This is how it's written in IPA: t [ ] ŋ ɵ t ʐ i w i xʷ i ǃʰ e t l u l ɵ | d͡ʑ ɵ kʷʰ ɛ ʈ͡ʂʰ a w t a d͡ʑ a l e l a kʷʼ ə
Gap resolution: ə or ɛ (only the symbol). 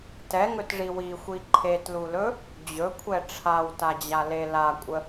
ɛ